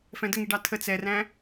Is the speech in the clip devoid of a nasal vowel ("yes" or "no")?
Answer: no